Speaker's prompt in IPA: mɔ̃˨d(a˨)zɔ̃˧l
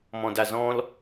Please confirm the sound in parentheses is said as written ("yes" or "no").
yes